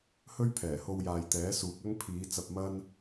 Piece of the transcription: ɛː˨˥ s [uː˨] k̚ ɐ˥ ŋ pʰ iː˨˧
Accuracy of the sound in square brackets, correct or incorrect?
correct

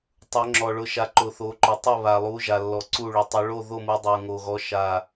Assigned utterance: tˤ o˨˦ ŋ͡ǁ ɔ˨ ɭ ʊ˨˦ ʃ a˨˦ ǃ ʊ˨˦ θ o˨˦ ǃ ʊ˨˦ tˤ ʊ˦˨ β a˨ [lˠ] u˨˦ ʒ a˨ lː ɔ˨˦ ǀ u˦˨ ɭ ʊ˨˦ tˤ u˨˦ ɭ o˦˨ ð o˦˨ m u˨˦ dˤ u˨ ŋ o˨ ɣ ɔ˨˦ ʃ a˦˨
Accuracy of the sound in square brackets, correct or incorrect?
correct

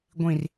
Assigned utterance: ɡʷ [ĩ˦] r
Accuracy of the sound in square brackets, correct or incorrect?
incorrect: ĩ˨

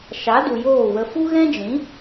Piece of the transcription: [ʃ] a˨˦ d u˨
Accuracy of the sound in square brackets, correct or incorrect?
correct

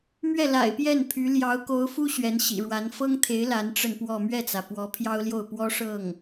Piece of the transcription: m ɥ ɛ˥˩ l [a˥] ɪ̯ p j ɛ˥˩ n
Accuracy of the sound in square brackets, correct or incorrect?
incorrect: a̰˨˩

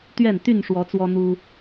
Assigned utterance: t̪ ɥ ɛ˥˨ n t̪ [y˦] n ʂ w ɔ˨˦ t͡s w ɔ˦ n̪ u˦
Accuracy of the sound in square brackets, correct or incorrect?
incorrect: y˥˨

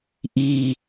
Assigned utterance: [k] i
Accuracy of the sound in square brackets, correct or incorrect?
incorrect: ʔ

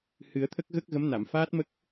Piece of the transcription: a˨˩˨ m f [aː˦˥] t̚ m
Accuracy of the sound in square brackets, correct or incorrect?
correct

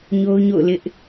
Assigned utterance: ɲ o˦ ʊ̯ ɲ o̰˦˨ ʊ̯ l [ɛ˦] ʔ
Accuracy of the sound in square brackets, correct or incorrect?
incorrect: ɪ˦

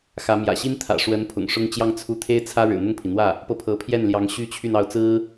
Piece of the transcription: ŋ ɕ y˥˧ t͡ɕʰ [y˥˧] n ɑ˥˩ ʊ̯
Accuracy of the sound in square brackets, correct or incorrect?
correct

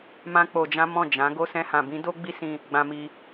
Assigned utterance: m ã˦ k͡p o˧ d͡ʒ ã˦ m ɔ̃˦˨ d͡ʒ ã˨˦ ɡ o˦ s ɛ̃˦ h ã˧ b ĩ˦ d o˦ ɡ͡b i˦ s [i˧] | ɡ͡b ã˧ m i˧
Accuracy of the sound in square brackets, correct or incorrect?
incorrect: ĩ˧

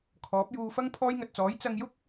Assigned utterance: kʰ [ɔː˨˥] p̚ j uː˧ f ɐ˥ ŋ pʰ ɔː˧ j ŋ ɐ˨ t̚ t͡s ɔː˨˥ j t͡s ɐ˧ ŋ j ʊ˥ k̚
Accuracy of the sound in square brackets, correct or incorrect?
correct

